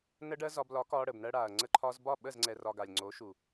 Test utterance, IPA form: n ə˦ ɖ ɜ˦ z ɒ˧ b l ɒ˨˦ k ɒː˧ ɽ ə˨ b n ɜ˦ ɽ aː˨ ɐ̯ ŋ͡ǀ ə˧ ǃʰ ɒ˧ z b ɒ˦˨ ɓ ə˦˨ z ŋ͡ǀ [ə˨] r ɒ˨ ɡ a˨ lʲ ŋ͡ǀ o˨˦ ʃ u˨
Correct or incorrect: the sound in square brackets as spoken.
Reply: incorrect: ɛ˨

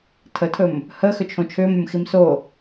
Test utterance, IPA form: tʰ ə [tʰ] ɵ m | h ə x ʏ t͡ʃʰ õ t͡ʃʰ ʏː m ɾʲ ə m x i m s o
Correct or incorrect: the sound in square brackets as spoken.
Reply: correct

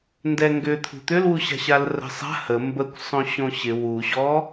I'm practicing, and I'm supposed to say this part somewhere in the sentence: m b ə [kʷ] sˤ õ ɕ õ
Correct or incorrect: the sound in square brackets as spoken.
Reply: correct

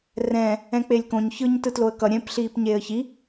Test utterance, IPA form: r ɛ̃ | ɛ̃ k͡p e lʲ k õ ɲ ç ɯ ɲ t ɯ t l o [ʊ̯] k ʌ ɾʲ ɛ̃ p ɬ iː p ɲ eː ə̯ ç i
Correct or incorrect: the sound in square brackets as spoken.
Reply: incorrect: ə̯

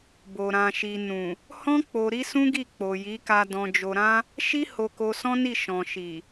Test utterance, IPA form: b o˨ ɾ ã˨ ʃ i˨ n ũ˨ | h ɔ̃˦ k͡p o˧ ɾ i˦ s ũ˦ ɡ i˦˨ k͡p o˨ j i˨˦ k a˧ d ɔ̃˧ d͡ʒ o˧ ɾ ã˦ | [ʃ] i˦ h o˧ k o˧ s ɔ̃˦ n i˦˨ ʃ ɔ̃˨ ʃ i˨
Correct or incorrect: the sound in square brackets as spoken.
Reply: correct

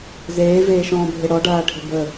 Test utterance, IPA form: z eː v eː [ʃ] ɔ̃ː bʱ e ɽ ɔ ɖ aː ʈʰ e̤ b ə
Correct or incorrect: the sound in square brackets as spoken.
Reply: correct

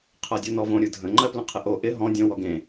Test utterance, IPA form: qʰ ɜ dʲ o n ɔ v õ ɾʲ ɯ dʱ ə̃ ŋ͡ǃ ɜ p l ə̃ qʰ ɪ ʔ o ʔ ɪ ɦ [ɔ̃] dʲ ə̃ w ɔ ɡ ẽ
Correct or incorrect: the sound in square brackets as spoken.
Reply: correct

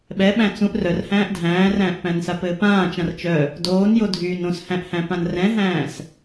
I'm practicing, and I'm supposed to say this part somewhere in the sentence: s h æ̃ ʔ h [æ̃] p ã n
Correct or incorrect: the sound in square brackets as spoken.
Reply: correct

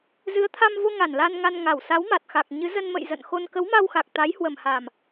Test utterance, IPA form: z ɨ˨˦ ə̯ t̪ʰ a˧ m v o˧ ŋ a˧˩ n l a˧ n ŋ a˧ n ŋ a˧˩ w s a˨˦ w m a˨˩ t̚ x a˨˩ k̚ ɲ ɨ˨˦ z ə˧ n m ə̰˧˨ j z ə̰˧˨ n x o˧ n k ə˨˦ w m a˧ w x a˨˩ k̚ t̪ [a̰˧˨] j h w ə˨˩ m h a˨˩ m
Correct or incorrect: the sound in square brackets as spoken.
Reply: incorrect: a˨˦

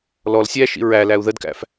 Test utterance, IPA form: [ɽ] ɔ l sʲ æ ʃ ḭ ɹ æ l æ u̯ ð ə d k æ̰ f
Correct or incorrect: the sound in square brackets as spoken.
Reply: incorrect: l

